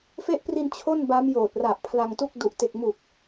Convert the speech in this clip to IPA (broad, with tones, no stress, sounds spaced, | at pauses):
f e˦˥ ʔ p r i˧ n t͡ɕʰ o˥˩ n b a˦˥ m j oː˨˩ t̚ r a˨˩ ʔ pʰ l a˧ ŋ t u˥˩ k̚ d u˨˩ ʔ t e˨˩ k̚ m u˨˩ k̚